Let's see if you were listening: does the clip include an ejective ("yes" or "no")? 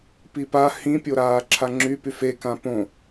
no